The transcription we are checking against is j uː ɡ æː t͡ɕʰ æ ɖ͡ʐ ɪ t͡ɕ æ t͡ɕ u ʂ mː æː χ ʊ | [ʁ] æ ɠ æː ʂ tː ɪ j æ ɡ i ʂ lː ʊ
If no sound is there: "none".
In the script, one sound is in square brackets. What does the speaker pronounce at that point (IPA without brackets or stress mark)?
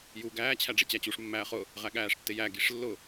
ʁ